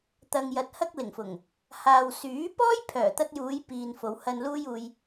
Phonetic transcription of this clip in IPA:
t̪ ɐ˨ ŋ j ɐ˨ t̚ h ɐ˥ k̚ l ɪ˨˩ ŋ f ʊ˨˩ ŋ | h aː˨ w s yː˨˥ p ɔː˥ j pʰ œː˨˩ t̪ ɐ˧ t̚ j uː˨˧ j p iː˨ n f o˨˧ w h ɐ˧ n l uː˥ j uː˧ j

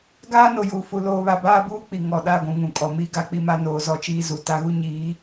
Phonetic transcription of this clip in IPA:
ɡ aː˦ n o˨ j uː˨ f u˨ l oː˨ β a˨ b aː˦ b uː˦ k͡p i˨ ŋ ɔ˨ ɗ a˦˨ ɡʷ ũ˨ ŋ ũ˨ kʼ ɔ˨ m i˦ ɡ a˨˦ k͡p i˦ m a˦ n oː˨ z ɔ˦ t͡ʃ iː˦ z u˨ t a˦ ɣ u˦ ɲ iː˨˦

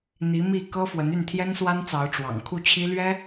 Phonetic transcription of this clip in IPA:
n̪ i˧˥ m i˥˩ k ɤ˥ f w ə˧˥ n y˥˩ n t̪ʰ j ɛ˥ n s w a˥ n t͡s ɑ˧˥ ʊ̯ ʈ͡ʂ w ɑ̰˨˩ ŋ kʰ u˥˩ t͡ɕʰ i˥ l ɥ ɛ˥

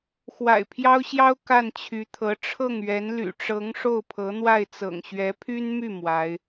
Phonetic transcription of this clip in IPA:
x w a̰˨˩ ɪ̯ pʰ j ɑ˥ ʊ̯ ɕ j ɑ˥ ʊ̯ k a˥˩ n t͡ɕʰ y˧˥ t̪ʰ ɤ˧˥ ʈ͡ʂʰ ɤ˥˩ ŋ ɥ ɛ˧˥ n l y̰˨˩ ʈ͡ʂ ɤ˧˥ ŋ ʂ o˥˩ ʊ̯ pʰ ɤ˧˥ n̪ w a˥˩ ɪ̯ t͡s ɤ̰˨˩ ŋ ɕ ɥ ɛ˧˥ pʰ y˥ n m y˥˩ m w a˧˥ ɪ̯

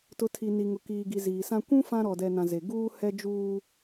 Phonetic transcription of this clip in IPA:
t ʊ˨˦ tʰ i˨ n i˨ ŋ ʊ˨ k iː˨ ɡ i˨ z iː˨ s ã˦ kʷ ũ˦ f ã˦ ɾ ɔ˨ d ɛ˨ n ã˨ z e˨ ɡ uː˦ h ɛ˦ d͡ʒ uː˦

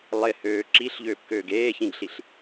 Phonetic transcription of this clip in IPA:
lˠ ɪ h øː ǁ i ɬ ʎ øː p k øː ɡ eː ç ĩ ɡ ɬ i ɬ

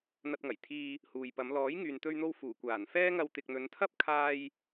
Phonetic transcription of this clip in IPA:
n̪ ɐ˧ t̚ ŋ ɐ˨˩ j t̪ʰ iː˧ | h uː˨ j p ɐ˨˧ m l ɔː˨˥ j ŋ yː˨ n t̪ ɵ˧ ɥ n̪ o˧ w f uː˨˩ kʷ aː˨˩ n f ɛː˥ ŋ ɐ˧ w t̪ ɪ˨ k̚ n̪ ɵ˨˧ n t̪ʰ ɐ˥ p̚ kʰ aː˧ j

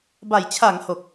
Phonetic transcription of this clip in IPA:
b a˨˩ j t͡ɕʰ a˩˦ ŋ h o˨˩ k̚

